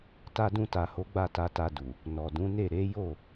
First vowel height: low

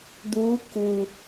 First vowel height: high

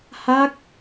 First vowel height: low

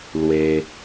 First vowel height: mid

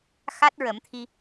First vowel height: low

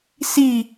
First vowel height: high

